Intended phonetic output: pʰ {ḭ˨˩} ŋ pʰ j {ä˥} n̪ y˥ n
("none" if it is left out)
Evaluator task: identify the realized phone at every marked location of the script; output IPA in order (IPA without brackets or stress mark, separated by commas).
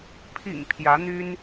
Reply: ḭ˨˩, ä˧˥